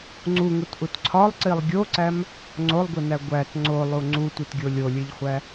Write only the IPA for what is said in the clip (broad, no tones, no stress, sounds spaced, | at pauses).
ŋ͡ǀ u ŋ u t ʔ u t ǀʰ ɒ lˠ ǀ i lˠ ɡʲ o ǀ æ m | ŋ͡ǀ o lˠ ɡʷ i n æ ɡʷ æ t ŋ͡ǀ o lˠ u ŋ͡ǀ u tʷ i t ɡʲ o lʲ o lʲ e ʎ χʷ æ